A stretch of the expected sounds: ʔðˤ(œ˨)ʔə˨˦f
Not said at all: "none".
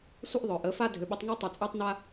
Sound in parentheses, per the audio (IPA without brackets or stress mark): œ˨